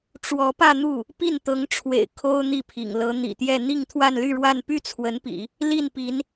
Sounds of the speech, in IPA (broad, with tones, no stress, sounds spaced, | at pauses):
ʈ͡ʂ w ɔ˧˥ p ä˥˧ n̪ u˥˩ | p i˥˩ n t̪ ɤ˧˥ ŋ ʈ͡ʂʰ w ḛ˨˩ ɪ̯ kʰ o˥ ʊ̯ n̪ i˥˩ pʰ ḭ˨˩ ŋ l ɤ˧˥ n̪ ḭ˨˩ t̪ j ɛ˥˧ n̪ i˥˧ ŋ t̪ʰ w a˥˧ n l y˥˧ ɻ w a˥˧ n p y˥˩ t͡sʰ w ə˧˥ n p ḭ˨˩˦ | l i˥˩ n p i˧˥ n